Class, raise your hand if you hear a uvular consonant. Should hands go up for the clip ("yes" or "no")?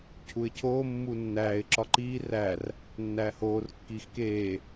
no